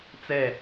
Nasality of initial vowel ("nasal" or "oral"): oral